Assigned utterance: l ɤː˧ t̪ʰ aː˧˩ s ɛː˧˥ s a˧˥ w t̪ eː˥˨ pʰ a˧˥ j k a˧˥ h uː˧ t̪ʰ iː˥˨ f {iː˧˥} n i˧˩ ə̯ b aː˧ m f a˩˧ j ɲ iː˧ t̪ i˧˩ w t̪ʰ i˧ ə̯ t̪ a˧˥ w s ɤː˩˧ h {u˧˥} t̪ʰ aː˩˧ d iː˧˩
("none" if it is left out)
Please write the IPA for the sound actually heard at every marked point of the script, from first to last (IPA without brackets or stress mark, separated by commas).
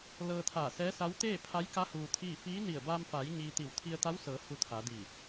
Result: iː˧˥, u˧